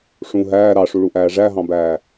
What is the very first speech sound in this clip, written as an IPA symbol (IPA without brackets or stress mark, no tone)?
ʂ